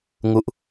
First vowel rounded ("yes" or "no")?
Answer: yes